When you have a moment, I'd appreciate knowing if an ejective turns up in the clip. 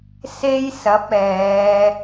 no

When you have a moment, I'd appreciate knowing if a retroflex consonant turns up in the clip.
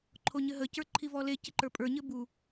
no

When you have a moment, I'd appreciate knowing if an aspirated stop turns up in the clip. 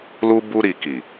no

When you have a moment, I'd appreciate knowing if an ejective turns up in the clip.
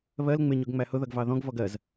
no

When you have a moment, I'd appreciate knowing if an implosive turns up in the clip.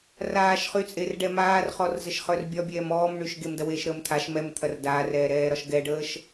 no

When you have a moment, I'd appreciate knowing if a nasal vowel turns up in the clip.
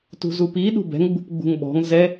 no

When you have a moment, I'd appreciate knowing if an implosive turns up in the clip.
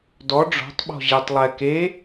yes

